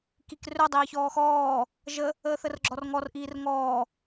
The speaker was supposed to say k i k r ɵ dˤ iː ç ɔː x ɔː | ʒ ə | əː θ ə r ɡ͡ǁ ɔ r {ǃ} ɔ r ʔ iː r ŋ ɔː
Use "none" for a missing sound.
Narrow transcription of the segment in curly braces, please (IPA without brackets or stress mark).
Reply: ŋ